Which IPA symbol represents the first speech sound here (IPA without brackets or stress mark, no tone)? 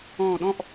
ɔ̃ː